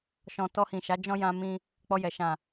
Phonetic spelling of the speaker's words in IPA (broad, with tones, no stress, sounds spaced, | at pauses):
ʃ ɔ̃˨ t ɔ˧ h ĩ˨ ʃ a˨˦ d͡ʒ ɔ̃˦ j ã˧ m ĩ˧ | k͡p ɔ˧ j ɛ˨ ʃ ã˨